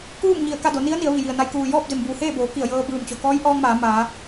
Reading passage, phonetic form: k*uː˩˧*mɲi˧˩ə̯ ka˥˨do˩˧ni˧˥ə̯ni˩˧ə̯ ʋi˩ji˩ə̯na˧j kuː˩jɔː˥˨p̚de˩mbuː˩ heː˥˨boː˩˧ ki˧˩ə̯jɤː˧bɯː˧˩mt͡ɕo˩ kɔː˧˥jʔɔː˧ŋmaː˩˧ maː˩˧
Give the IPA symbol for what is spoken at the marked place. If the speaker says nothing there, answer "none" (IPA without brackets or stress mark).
uː˥˨